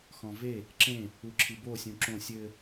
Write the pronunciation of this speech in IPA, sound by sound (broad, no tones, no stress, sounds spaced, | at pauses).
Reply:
x ɔ̃ v e | ǁ ẽ | u ǁʰ i b o sʲ ũ ǁ õ sʲ ɘ